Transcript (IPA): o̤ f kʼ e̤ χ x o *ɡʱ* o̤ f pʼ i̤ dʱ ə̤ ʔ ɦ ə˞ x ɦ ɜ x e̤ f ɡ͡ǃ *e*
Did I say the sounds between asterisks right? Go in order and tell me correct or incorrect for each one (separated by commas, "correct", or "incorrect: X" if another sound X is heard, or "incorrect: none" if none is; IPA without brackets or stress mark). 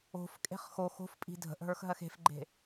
incorrect: x, incorrect: e̤